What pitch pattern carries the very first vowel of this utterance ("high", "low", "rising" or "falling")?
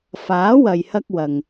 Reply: rising